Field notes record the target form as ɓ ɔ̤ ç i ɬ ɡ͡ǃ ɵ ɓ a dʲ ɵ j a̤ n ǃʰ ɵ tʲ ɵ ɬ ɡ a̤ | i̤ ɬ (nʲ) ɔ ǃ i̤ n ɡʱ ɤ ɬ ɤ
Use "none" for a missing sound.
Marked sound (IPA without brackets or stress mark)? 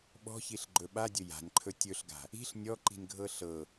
nʲ